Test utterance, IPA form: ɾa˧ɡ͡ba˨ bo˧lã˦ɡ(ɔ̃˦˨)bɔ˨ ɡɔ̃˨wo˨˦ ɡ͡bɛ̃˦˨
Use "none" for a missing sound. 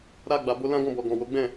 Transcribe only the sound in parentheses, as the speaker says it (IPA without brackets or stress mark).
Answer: ɔ̃˦˨